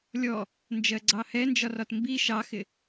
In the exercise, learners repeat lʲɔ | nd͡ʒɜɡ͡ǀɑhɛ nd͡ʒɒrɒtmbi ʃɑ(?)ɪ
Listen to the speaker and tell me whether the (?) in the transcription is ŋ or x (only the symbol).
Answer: x